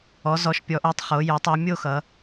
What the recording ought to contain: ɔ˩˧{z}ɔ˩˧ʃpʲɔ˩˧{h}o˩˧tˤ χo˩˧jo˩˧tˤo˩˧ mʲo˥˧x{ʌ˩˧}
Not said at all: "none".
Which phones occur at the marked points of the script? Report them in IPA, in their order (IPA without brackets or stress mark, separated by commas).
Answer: z, ʔ, ʌ˩˧